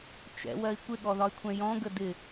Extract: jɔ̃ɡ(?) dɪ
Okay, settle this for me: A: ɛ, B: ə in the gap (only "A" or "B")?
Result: B